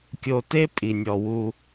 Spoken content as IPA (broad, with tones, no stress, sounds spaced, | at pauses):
kʲ o˨ t e˦ pʼ i˨ nʲ ɔ˨ w u˦